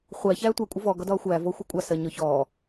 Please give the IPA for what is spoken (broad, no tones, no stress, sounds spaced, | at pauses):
χʷ æ ç æː tʷ æ kʷʼ ə v ɔ ɡ ɒ d ɒː xʷ æː v ɔ xʷ ɛ kʷʼ ɑ s ɜ ɲ ɔ ç ɔː